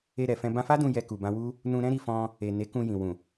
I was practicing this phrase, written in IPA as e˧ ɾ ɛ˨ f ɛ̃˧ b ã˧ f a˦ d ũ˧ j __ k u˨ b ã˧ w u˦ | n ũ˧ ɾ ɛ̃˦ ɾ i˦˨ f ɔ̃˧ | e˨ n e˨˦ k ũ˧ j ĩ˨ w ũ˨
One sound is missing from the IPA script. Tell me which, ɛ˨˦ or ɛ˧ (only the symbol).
ɛ˧